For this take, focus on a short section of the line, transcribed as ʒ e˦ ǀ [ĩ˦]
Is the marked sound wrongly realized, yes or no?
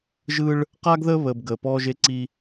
yes